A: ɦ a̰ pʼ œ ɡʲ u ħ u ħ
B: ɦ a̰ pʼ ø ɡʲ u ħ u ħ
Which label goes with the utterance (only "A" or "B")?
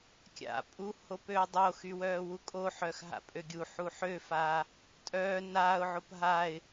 B